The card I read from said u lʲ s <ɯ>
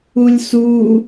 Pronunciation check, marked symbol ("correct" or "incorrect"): incorrect